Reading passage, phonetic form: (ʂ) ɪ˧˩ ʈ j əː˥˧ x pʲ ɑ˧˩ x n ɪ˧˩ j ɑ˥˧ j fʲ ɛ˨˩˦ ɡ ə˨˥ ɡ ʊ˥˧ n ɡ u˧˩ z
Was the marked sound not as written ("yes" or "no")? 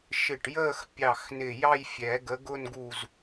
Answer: yes